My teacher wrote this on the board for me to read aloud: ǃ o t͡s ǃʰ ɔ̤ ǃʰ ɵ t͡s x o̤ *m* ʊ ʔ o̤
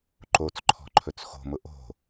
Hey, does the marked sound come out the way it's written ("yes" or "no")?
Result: yes